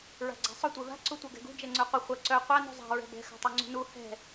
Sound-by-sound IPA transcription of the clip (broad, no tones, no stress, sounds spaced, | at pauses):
ɹ a̤ ɡ͡ǀ a̤ sˤ ʊ tʷ ɛ v a̤ ǀ u tʷ œ ɡ ɛ̤ ɡ ṳ d͡ʒ ɛ ŋ͡ǀ œ qʷ ɪ χʷ ɐ ǀ œ qʷ a n ṳ zˤ a̤ ɹ ɛ̤ b ɛ̤ x a̤ tˤ œ ŋ͡ǀ ṳ n u h ɛ̤